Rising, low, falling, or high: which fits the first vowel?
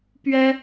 high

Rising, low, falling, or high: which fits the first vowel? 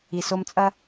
low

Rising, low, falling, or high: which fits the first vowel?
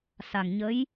low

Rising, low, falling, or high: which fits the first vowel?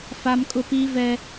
high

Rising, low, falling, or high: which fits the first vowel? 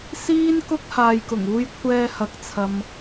high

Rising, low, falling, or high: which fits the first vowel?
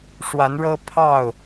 rising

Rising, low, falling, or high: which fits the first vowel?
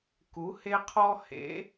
rising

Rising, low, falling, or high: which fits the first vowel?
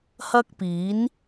high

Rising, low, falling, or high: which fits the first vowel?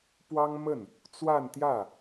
high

